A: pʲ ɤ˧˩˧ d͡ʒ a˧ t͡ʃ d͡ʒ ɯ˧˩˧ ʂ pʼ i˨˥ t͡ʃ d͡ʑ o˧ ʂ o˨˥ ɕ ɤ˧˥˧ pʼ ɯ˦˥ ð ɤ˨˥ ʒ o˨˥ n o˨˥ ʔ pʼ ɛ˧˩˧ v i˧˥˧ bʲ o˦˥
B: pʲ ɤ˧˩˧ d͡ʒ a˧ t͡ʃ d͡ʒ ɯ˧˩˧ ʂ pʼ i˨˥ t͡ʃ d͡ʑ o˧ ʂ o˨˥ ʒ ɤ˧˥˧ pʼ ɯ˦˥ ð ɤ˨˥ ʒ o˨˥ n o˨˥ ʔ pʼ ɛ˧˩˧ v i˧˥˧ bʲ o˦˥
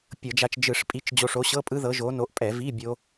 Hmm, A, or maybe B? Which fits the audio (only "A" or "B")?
A